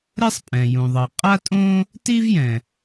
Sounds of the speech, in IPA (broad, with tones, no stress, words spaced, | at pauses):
ɾɛ˥sˤ pʼɛ̃˩ jũ˩ðˤʌ˩ qʼa˥tʼõ˥ | tiː˥vjɛ̃˩